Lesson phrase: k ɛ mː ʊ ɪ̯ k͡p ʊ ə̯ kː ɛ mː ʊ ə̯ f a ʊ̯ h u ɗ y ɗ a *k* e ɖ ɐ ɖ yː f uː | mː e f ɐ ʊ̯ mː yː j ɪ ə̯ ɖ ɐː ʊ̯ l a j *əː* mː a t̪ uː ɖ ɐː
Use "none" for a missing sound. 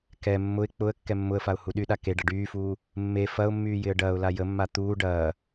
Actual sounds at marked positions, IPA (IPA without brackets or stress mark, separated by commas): k, ə